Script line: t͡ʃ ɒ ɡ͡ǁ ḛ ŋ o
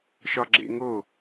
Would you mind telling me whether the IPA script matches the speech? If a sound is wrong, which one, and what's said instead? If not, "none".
t͡ʃ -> ʃ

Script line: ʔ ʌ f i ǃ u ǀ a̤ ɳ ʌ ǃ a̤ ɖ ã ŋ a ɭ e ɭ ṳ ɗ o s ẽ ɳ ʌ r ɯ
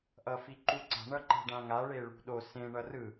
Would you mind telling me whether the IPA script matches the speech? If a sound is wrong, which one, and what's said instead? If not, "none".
none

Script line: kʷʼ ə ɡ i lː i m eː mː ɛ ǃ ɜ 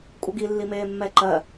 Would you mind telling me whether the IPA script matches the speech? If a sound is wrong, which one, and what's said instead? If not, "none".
none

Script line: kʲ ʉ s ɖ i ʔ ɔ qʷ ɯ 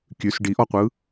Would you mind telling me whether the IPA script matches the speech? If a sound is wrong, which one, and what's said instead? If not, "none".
none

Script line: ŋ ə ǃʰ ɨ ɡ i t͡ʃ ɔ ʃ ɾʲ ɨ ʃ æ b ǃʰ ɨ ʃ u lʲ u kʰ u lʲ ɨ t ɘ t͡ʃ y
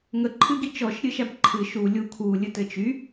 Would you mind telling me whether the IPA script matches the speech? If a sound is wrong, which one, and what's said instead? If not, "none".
none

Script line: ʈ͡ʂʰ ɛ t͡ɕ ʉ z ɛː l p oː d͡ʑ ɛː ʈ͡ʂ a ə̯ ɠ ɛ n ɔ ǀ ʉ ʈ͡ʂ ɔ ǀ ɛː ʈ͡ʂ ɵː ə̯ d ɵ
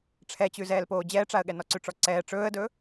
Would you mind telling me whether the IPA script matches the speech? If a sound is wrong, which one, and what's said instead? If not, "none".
none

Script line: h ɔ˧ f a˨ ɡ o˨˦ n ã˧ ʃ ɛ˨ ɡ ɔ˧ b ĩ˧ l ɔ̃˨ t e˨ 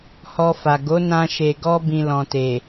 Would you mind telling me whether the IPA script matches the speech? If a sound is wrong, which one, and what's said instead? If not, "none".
ɛ˨ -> e˨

